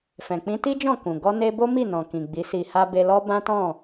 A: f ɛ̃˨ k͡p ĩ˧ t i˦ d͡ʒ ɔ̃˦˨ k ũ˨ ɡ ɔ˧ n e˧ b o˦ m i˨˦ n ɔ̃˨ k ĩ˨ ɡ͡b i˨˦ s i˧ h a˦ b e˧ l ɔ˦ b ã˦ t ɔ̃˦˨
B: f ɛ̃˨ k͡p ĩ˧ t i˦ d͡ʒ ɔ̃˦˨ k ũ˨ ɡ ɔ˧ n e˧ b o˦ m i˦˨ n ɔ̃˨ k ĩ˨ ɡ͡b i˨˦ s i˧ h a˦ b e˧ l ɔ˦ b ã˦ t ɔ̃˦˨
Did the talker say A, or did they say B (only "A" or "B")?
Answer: B